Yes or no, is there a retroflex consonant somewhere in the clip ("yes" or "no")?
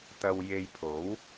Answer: no